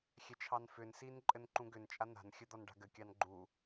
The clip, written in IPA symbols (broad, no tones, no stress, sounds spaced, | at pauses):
xʲ ɛ t͡ʃʰ ɑ n f ʏ n s i n ǃʼ ɘ n ǃ ũ ɡ ʏ n t͡ʃʼ a n a̤ n xʲ ə d̪ ɔ n ɖ a̤ ɡ ɘ kʲ ɑ n ɡ͡ǃ u